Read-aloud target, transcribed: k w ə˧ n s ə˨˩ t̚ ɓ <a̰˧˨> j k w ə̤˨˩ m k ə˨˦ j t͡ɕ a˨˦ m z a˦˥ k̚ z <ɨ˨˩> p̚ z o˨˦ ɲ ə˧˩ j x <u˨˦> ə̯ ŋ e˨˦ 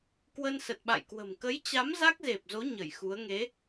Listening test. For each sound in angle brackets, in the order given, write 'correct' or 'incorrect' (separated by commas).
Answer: correct, incorrect, correct